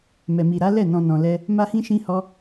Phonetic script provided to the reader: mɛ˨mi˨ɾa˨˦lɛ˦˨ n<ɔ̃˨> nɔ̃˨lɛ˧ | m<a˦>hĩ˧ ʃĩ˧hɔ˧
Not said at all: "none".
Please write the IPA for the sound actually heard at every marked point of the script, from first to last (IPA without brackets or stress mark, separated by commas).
ɔ̃˨, a˧